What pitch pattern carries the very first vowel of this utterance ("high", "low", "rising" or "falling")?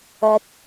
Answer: rising